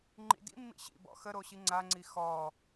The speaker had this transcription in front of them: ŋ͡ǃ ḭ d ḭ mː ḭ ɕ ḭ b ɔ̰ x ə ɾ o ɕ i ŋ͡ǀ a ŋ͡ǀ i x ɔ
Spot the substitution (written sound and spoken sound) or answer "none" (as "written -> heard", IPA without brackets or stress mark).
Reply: none